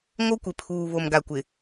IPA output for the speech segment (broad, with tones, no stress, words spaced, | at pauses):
ŋo˦kʷɪ˨pʰuː˨ βo˨mɡa˨kʷɪ˨